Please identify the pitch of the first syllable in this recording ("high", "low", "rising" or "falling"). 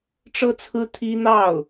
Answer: falling